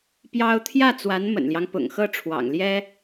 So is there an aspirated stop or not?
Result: yes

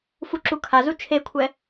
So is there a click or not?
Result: yes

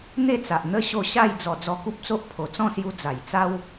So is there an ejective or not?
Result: no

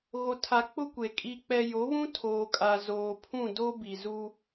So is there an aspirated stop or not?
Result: yes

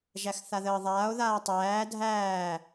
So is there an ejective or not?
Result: no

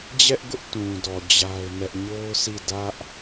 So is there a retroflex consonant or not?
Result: no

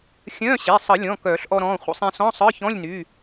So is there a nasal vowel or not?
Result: yes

